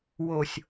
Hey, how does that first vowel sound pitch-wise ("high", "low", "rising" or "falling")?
low